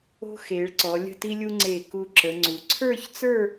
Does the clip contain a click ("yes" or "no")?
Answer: yes